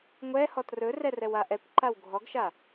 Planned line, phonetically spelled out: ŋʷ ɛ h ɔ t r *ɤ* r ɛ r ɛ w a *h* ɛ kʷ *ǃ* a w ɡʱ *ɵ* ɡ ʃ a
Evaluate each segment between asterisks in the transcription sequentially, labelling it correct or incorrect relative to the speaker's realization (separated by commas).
incorrect, incorrect, correct, incorrect